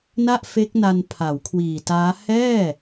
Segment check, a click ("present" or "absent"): absent